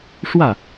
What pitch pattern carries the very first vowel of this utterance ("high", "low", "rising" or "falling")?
falling